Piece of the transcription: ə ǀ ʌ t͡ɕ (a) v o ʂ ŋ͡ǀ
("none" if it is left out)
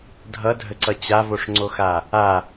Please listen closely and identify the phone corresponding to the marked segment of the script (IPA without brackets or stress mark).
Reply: a